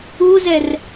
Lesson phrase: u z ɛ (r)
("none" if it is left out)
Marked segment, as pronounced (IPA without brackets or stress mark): r